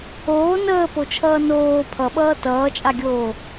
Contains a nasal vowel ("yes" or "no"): no